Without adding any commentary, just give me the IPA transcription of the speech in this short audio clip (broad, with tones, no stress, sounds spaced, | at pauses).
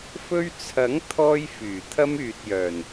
f ɵ˥ ɥ t͡sʰ ɐ˨˥ ŋ t̪ʰ ɔː˥ j f yː˨˩ t̪ʰ ɐ˥ m yː˨ t̚ j œː˨˩ n